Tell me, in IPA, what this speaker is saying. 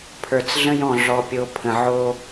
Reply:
pʰ ə˞˨ t͡s ɮ ə̃˦ j ɔ̃˨ ɮ ɔ˨ pʲ o˨ pʰ ə̃˨ ʕ o˦

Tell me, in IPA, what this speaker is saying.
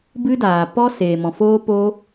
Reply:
b ɨ˦ d aː˨ p ɔ˦ s eː˨ m ɔ̃˨ f oː˦ p oː˦

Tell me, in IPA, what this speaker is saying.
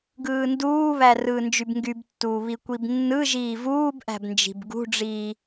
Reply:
ɡ ɯː n d uː β æ r ɯː n d͡ʒ y b ŋ ɡ y b tː uː β i kʷ i b nː ɯ ʒ iː v uː b ʔ æ̤ b n d͡ʒ i̤ b ɡ ṳ ɖ͡ʐ iː

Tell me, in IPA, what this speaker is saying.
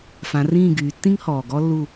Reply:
f ã˩˧ r ĩː˦˨ ɡ yː˩˧ tː ĩ˥ ŋ h ɔː˩ ɡ ɔ˥ lː u˦˨

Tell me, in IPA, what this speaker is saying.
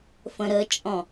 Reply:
f ə̃ ɾ ə t͡ʃʼ ɔ̃

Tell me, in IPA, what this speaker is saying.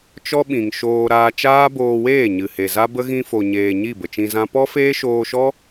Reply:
t͡ʃ ɔ˦ ɓ ĩ˨ ŋ ʃ oː˧ ɾ aː˧ t͡ʃ aː˦ b oː˧ w eː˦˨ ɲ ɨ˨ h e˨ z a˦ b ə˦ ɣ ĩ˧ f o˨ ɲ eː˨ ɲ i˦˨ b ə˨ t͡ʃ ĩ˧ z ã˦ p ɔ˦ f eː˦ ʃ oː˧ ʃ ɔ˦

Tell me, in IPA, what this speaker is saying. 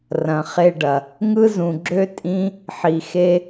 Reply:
r ɐ̃˨ χ e˧ ɖ ɐ˨ | ŋ ɯ˦ z ũ˨ ɡ͡ǁ ø˦ tʼ ĩ˦ | ħ i˨ x e˦

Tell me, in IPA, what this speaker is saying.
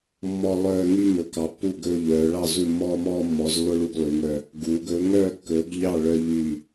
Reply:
mː ɔ˦ lˠ œː˦ ŋ y˦ m ɵ˨˦ k ɑ˨˦ pː u˦˨ ɡ ɵː˦ ʎ œː˨˦ ɭ ɑ˦˨ z u˦˨ mː ɔː˦ m ɔː˦ mː ɔ˨˦ z lː o˦ ɭ u˦ ɡ lˠ y˨˦ ŋ œ˦ | ɡ uː˨˦ ɡ ɵː˨˦ ŋ œː˦˨ kː ɵː˨˦ ɡ ʎ ɑ˦˨ ɭ œ˦ ʎ yː˦˨

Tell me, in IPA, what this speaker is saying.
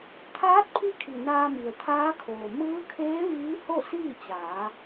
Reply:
t̪ʰ aː˧˥ t̚ pʰ i˧˥ kʰ i˩ n aː˧ m i˩ ə̯ t̪ʰ aː˧˥ kʰ oː˩ m ɯː˧˥ kʰ eː˧˥ ʋ iː˧˥ h o˥˨ s iː˥˨ t͡ɕ aː˩˧

